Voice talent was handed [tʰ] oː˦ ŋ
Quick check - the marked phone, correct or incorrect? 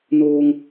incorrect